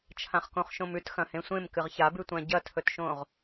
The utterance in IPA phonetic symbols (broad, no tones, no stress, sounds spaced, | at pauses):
t͡ʃʰ ã χ k õ χ ʃ õ m ʉ t x ɐ̃ h ẽ sʷ ẽ m k ɨ ʁ ç a b ʉ tʷ ã ɟ ɐ tʰ ɵ t ʃ õ ʁ